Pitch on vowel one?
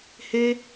high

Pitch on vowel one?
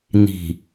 low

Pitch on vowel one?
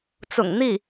low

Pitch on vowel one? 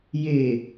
low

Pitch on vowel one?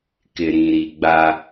low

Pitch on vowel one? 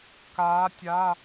rising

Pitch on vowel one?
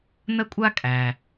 high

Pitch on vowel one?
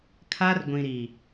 high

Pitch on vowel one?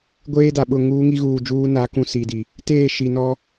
high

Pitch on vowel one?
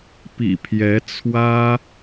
low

